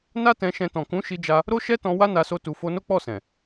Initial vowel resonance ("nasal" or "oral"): oral